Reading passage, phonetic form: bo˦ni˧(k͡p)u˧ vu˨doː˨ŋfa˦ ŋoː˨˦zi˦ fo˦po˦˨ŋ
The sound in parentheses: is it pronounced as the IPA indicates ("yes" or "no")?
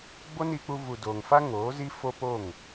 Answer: yes